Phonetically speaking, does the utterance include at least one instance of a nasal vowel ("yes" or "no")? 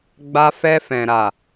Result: yes